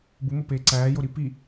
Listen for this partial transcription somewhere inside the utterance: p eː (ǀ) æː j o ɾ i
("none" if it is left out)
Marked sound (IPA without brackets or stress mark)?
ǀ